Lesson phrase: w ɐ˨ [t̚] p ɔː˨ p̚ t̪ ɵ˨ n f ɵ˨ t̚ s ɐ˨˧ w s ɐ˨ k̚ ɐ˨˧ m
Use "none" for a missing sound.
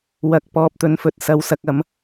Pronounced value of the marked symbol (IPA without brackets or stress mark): k̚